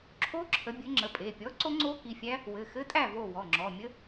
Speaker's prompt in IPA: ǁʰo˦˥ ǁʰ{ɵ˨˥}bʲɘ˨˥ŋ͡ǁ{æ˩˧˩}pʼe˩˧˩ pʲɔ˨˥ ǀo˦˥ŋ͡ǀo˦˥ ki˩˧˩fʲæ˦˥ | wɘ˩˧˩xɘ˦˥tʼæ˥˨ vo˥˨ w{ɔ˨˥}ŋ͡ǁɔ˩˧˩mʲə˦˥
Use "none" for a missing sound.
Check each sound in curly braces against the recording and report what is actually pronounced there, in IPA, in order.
ə˨˥, ə˩˧˩, ɔ˩˧˩

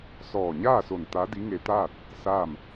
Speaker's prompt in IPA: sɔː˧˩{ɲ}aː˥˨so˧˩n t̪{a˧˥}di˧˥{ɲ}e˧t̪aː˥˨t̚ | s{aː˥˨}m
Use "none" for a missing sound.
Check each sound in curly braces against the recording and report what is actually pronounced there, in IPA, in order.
ɲ, a˧˥, ŋ, aː˥˨

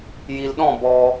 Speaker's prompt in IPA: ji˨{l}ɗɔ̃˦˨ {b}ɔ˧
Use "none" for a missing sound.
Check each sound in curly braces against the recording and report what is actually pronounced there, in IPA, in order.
l, b

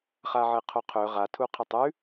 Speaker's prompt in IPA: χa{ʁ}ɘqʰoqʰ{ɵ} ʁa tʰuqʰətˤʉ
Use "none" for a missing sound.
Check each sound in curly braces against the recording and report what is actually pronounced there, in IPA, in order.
ʕ, ɵ

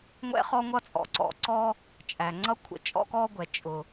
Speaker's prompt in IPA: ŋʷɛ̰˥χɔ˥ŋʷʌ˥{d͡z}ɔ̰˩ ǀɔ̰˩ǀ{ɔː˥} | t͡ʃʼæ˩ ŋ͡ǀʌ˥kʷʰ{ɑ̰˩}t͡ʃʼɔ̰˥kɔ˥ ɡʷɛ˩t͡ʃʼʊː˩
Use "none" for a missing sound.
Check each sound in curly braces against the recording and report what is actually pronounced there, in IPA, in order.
t͡sʼ, ɔː˥, ə̰˩

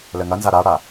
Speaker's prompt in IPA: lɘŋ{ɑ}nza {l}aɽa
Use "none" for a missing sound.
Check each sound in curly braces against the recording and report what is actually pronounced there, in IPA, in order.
ɐ, ɾ

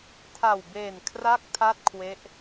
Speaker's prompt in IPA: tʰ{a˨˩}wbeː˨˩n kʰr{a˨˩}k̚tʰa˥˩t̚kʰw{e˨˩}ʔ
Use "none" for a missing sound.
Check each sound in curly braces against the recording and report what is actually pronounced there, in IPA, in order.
a˨˩, a˥˩, e˦˥

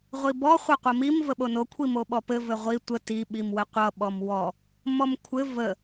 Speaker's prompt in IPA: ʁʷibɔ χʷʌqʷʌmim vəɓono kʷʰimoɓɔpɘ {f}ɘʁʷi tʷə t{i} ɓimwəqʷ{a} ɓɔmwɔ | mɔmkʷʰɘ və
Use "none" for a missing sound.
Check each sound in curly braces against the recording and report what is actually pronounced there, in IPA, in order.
v, i, ʌ

